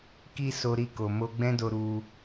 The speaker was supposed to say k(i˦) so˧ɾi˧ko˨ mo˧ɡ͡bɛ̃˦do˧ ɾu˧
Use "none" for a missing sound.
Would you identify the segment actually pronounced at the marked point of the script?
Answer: i˦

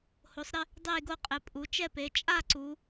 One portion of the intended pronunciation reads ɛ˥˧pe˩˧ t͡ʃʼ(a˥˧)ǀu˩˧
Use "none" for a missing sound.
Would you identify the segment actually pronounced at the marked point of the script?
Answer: a˥˧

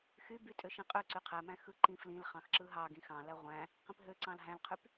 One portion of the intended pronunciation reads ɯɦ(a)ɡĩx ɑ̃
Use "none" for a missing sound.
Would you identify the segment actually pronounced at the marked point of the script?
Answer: ɑ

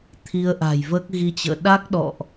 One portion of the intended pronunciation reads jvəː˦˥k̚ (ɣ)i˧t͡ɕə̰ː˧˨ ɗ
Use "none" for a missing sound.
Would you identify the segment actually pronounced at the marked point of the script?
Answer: ɣ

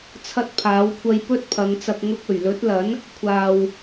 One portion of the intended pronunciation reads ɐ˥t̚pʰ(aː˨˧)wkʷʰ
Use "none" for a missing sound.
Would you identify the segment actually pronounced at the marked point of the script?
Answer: aː˨˥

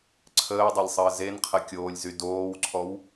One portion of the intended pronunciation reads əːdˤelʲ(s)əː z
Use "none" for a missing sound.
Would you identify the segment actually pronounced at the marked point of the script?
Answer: sˤ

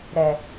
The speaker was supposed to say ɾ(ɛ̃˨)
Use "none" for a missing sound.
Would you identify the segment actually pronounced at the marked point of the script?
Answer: ɛ˨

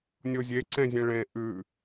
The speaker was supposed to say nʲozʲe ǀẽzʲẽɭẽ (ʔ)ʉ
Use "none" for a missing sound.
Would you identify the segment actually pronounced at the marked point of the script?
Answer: ʔ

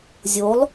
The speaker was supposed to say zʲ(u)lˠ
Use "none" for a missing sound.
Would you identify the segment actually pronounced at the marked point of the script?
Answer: o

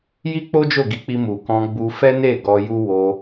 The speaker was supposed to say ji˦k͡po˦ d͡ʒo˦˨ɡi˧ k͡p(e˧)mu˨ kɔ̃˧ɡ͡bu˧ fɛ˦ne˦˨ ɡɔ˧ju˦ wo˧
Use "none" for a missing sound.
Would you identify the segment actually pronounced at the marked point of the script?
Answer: i˧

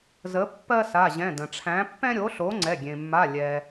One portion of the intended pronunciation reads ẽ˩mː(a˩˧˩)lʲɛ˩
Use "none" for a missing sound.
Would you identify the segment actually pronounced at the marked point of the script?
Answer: a˩˧˩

